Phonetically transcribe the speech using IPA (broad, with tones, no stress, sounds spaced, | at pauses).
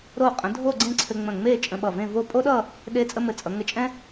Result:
ɾ o˧˩ qʼ ə̃˩˧ dʱ o˥˧ ɡ͡ǀ ẽ˥˧ ǀʰ ɘ˧ ŋ͡m ə̃˧˩ ŋ͡m e˥˧ t͡ʃʼ ə̃˧ ɓ ʌ˧˩ v ẽ˥˧ v o˥˧ pʼ o˥ ɗ ʌ˥˧ | ɗ e˧ t͡sʼ ə˥ m ɘ˧˩ t͡sʼ ʌ˩˧ ŋ ɘ˧˩ t͡ʃʼ ɛ̃˥